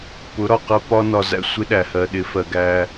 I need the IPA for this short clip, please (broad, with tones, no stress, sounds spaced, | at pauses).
p ʊ˨˦ ɾ ɒ˨ q ɜ˦ p ɒ˦ n ɒ˨ z æ̰˦ sʷ ɪ˦ ɗ æ˨ h ɜ˨ ɗ ɪ˨˦ f ɜ˨ ɡ æ˦